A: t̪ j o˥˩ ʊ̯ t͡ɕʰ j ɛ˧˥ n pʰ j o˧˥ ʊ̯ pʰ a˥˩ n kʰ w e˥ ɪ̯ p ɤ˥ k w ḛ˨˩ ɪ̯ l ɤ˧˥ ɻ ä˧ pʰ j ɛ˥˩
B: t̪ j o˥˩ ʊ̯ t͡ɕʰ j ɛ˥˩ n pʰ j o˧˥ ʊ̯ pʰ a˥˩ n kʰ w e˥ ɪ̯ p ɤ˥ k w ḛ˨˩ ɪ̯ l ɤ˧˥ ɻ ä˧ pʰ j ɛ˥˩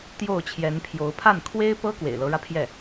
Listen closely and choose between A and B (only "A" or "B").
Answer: A